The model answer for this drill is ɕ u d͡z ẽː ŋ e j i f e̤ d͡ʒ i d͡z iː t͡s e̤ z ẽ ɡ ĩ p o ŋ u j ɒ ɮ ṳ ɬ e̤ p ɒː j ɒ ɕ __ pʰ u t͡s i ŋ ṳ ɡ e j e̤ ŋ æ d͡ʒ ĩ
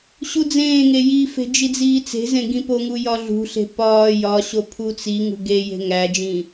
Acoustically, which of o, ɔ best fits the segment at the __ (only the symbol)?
o